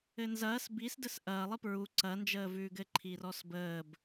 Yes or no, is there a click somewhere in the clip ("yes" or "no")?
yes